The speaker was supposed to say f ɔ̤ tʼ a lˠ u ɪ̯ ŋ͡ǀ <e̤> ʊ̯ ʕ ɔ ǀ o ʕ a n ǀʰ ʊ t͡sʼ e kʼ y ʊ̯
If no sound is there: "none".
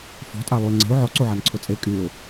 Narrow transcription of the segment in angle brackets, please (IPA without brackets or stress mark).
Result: e̤